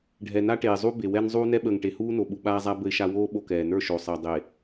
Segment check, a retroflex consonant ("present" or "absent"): present